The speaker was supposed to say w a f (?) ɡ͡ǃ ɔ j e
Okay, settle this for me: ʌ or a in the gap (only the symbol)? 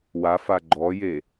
a